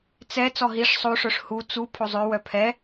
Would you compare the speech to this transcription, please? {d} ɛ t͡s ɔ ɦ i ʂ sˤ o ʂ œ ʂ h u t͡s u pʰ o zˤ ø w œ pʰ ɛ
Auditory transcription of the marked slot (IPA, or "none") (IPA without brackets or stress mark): t͡s